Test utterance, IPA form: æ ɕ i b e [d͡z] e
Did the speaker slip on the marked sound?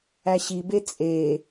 yes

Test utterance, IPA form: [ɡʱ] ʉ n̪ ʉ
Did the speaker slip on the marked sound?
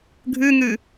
no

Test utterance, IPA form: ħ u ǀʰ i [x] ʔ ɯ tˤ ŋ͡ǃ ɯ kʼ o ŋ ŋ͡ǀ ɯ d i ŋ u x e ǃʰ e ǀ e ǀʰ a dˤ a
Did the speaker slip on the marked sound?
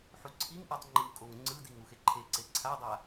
yes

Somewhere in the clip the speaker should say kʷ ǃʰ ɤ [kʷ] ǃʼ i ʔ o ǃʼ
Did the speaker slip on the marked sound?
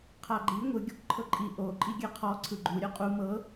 yes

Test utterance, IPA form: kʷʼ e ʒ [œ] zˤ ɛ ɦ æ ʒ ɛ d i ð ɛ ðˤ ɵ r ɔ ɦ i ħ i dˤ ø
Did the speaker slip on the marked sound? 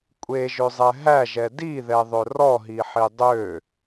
yes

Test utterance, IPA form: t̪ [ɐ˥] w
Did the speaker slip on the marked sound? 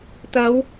yes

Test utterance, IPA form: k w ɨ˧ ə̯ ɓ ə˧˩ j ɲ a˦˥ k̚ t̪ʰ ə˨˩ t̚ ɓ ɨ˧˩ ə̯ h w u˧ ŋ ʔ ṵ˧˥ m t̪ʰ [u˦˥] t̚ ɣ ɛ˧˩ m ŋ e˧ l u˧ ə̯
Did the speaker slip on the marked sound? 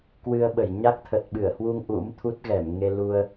no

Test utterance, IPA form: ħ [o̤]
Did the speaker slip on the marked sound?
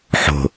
no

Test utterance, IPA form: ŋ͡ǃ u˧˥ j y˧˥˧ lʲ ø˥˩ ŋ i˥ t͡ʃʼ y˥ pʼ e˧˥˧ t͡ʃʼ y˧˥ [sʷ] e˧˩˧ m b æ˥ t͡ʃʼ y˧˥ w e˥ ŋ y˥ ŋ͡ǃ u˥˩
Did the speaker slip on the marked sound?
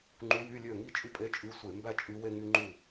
no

